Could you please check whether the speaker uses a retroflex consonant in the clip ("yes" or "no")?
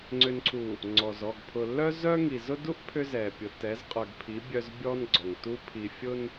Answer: no